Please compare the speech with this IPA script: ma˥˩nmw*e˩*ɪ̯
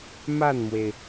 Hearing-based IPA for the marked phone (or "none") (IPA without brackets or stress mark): e˩